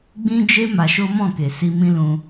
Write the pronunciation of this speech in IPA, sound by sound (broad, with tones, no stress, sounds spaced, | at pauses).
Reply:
ɡ͡b ĩ˦ d͡ʒ e˦ m a˧ ʃ o˦ m ɔ̃˦˨ k e˨ s i˧ m ĩ˦ l ũ˧